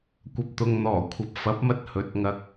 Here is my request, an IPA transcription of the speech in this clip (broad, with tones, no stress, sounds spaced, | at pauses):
kʷ ɐ˨ p̚ t̪ ʊ˨ ŋ n̪ ɔː˨˩ kʷʰ ɐ˨ p̚ f ɐ˨˥ p̚ m ɐ˧ t̚ h ɵ˨˥ t̚ ŋ ɐ˧ k̚